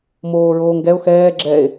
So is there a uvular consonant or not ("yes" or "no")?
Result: no